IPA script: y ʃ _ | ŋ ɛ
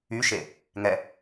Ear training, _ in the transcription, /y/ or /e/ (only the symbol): e